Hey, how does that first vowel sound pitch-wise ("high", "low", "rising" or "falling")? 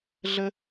high